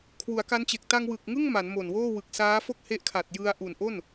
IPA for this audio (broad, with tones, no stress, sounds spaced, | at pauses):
kʰ w u˩˦ a̯ k a˦˥ n t͡ɕ e˨˩ k̚ t a˧ ŋ w ɯ˨˩ k̚ ŋ ɯ˥˩ ŋ m a˩˦ n m o˨˩ n w oː˥˩ w ɯ˨˩ k̚ s aː˦˥ f o˥˩ k̚ h e˦˥ ʔ kʰ a˨˩ t̚ j ɯ˧ a̯ ʔ u˨˩ n ʔ o˥˩ n